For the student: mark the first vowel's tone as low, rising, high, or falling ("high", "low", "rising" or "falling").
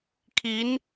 rising